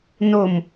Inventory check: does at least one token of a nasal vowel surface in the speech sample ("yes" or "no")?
no